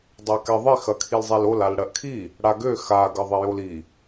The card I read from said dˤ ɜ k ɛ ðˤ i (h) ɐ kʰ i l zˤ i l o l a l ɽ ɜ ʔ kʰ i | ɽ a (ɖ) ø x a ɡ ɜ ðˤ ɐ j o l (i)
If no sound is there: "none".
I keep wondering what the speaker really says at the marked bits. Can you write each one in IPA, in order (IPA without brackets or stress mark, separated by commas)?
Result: x, ɡ, i